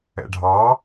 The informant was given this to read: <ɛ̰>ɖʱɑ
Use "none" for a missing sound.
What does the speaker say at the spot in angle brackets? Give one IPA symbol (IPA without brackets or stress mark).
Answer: ɛ̰